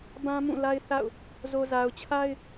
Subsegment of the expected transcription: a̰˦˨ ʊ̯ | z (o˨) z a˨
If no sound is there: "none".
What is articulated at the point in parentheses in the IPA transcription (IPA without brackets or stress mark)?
o˨